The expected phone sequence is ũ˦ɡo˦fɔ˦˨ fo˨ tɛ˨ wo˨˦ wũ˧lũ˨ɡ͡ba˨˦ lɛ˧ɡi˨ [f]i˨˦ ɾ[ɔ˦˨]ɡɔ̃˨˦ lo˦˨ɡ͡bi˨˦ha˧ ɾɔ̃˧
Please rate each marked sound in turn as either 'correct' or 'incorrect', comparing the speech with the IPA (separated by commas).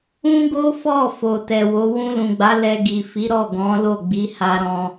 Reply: correct, correct